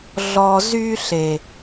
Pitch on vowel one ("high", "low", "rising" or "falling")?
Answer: low